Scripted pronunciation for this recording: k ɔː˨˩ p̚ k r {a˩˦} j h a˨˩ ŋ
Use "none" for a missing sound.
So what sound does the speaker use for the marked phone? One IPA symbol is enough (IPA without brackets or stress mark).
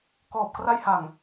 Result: a˧